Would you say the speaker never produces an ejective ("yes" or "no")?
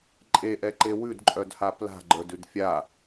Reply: no